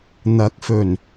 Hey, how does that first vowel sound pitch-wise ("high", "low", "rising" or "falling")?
rising